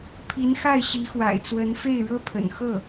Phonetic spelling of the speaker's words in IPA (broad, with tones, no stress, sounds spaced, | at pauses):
pʰ i˧˥ n x a˥˩ ɪ̯ ɕ i˧˥ x w a̰˨˩ ɪ̯ t͡s w ə˧˥ n f e˥˩ ɪ̯ ɻ ɤ˥ pʰ ə̰˨˩ n x ɤ˥˩